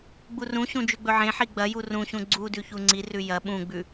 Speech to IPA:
ɡ͡burũɕũ d͡ʒʉɡ͡bɵʕẽħi ɡ͡bɐju rũɕũ ɡ͡ǀudʉ çuŋ͡ǀirʉ jɐ ɓũɡ͡bʉ

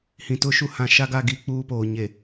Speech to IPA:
hĩ˨tʊ˦ʃu˦ hã˨ʃa˦ɡa˦˨ ɡi˦k͡puː˦poː˨ ɲe˨

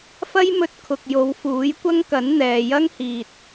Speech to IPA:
fɐ˥jmɵ˧t̚kʰʊ˨k̚ jo˨˧w fuː˨˥jkʷɐ˥ŋkɐ˨˥n n̪ɛː˨jɐ˥ŋhiː˨t̚

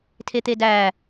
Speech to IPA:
tʰet̪edæ

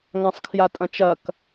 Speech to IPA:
ŋãsˤkʰjatʼɐ̃t͡ʃɐk

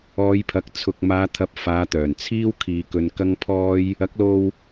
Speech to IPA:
ɔː˨˧jpʰɐ˨˥k̚ t͡sʰʊ˨k̚maː˨˧t̪ʰɐ˨˥p̚ faː˨˧t̪œː˨˩nt͡sʰiː˥w kʰiː˨˧kɵ˧nkɐ˥ŋ pʰɔː˥j | ɐ˨˥k̚lo˧w

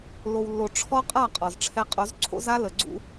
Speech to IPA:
lo˨wlːo˨ ʈ͡ʂʰɔ˦qʼa˦˨ qʼɔ˨zʈ͡ʂʰɛ˦ qʼo˨˦zǀʰo̰˦za˦ lə˨ɡ͡ǀṵ˦

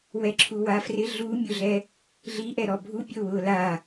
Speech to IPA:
wɛǁʰuwafrɪ ɮumʲʊɮɛ | ɮiʔɛɾɔ bʱupʲo wʊːla

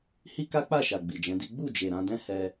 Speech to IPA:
hi˦ka˦k͡pa˦˨ʃa˨ ɡ͡bi˨d͡ʒɛ̃˨˦di˦ ɡ͡bu˦˨d͡ʒe˨ ɾã˨˦dɛ̃˦ hɛ˧

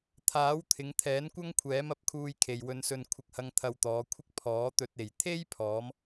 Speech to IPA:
t̪ʰaː˨˥wt̪ʰɪ˨˧ŋt̪ʰɛː˨˥nkʷɐ˥ŋ kʷʰɛː˨˥mɐ˨˥p̚kʰuː˧j kʰe˨jwɵ˧nsɵ˧n kʷʰɪ˧k̚hɐ˧ŋ t̪ʰɐ˧wt̪ɔː˨˧kʷʰɪ˥k̚ pʰɔː˨˥t̪ɵ˧t̚e˨j t̪ʰe˥jpʰɔː˨˧m

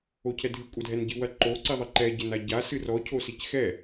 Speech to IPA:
ocʰɛdʱɨ kʷʼɐdʱɛnɟɨwɐ ǃo ǀiðˤɘǃɛ ɟɘnaɟa sɨrɔ cʰosicxɛ

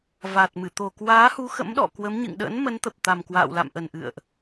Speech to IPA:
vaː˨˩t̚mɨ˧˩ t̪o˨˩kwaː˨˦hu˨˦ xə̰˧˥mɗɔ̰˧˨kwə˨˦m ɲɨ̰˧˨ŋɗə̰˧˥n mə˨˦nt̪ə˨˩p̚ t̪a˨˩mkwa̰ː˧˨wla̰˧˨mʔə˨˩n ʔɨ̰˧˨ə̯ʔ

